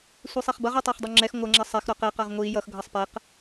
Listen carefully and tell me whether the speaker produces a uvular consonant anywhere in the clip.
yes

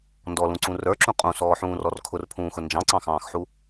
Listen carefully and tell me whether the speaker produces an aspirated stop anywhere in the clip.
yes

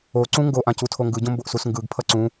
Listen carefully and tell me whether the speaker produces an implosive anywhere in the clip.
no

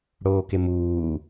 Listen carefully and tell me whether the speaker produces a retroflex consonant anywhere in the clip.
yes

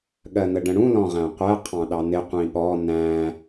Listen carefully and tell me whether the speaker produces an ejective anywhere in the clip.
no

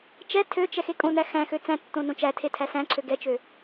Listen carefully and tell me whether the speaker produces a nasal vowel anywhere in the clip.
yes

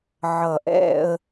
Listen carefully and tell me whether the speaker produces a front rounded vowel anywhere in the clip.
no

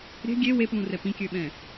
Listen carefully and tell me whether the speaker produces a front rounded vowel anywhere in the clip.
yes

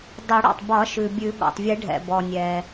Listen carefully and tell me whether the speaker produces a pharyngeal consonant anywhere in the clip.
no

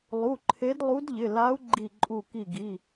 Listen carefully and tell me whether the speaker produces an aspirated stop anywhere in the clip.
yes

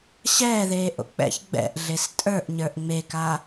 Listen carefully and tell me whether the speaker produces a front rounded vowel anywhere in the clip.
no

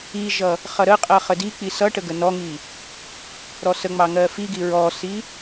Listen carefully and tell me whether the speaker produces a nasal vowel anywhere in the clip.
no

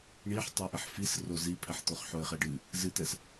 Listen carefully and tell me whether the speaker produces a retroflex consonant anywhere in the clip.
yes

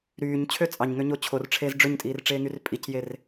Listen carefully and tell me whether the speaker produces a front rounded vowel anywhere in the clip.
yes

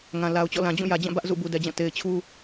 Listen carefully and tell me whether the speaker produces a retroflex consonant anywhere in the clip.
no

